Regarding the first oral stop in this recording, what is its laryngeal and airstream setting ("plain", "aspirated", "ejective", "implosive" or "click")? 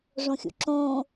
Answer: click